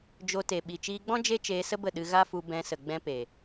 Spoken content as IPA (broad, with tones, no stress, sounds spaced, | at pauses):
d͡ʒ o˧ t e˨ ɓ i˨ t͡ʃ iː˧ ɡ͡b ɔ̃˦ d͡ʒ e˦ t͡ʃ eː˧ s ə˦ b ə˦˨ ɗ ɨ˧ ɣ a˦ f u˧ b ɛ̃˧ s ə˨ ɡ͡b ɛ̃˧ p e˨